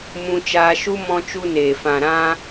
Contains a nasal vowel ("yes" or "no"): yes